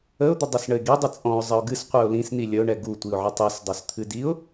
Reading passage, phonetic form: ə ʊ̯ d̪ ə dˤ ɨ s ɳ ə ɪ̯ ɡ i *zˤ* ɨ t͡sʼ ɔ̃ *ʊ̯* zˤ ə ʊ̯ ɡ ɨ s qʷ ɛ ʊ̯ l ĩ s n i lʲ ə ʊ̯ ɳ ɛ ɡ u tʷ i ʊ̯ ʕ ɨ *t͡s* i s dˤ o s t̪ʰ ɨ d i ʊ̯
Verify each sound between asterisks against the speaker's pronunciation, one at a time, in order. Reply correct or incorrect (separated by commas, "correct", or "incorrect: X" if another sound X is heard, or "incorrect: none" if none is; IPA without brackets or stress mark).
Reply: incorrect: dˤ, correct, incorrect: tˤ